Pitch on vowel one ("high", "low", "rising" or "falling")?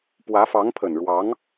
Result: rising